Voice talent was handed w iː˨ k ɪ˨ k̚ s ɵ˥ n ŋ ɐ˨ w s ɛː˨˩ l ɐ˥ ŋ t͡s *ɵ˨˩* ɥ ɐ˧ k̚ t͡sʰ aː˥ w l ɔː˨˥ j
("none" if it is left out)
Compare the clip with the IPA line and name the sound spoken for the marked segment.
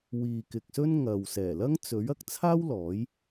ɵ˨˥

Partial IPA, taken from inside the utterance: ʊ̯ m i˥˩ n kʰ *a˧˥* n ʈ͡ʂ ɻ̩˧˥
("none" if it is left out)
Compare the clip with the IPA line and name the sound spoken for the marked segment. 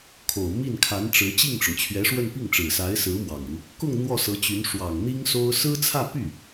a˧˥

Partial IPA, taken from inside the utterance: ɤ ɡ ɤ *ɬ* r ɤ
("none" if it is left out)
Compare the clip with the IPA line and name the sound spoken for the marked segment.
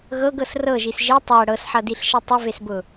s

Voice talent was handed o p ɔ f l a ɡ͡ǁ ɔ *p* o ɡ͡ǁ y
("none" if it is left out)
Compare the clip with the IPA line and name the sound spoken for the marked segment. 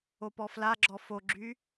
f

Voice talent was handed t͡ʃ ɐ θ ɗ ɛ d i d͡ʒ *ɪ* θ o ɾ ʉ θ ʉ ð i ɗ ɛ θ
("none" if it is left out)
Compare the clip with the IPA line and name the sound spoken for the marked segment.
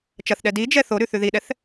ɛ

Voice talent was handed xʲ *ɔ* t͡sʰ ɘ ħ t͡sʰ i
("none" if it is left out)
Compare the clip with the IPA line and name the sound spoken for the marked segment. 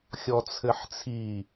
ɔ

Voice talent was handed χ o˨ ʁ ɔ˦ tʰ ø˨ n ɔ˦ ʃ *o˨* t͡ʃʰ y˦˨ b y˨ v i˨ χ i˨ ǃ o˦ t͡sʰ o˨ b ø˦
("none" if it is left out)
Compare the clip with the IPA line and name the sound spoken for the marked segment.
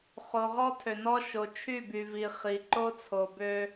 o˨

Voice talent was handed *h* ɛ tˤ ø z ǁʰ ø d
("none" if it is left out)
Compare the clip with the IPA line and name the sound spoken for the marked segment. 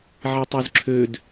ʕ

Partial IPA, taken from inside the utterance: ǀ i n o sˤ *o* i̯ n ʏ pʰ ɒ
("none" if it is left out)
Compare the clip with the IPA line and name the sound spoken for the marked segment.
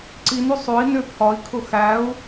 o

